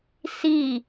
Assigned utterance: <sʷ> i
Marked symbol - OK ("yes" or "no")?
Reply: no